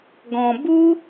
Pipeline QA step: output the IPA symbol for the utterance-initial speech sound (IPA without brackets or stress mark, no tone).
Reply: ɡ